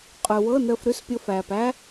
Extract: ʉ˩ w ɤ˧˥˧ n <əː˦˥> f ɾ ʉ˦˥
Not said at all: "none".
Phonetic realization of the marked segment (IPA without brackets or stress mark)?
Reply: əː˧